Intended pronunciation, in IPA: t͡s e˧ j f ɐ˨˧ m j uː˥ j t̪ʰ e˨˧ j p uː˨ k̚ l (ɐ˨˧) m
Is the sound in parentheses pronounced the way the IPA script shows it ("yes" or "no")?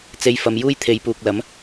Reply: no